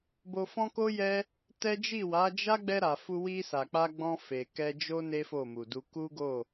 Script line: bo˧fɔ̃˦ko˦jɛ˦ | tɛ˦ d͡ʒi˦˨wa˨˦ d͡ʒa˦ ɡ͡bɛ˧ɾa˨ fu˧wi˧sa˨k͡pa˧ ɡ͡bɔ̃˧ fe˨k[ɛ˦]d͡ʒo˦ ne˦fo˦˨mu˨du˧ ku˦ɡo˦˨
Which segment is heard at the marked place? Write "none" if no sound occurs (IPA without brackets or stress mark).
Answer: ɛ˧